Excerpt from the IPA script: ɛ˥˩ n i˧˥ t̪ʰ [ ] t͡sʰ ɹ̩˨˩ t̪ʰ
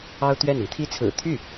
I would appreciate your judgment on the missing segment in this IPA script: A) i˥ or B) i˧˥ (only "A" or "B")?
A